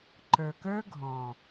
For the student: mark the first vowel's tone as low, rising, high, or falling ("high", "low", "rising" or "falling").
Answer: low